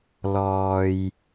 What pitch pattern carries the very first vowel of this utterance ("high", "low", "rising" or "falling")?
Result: low